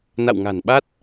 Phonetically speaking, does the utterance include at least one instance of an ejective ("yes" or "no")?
no